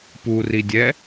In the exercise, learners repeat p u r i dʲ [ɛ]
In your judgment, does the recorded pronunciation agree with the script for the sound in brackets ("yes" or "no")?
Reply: yes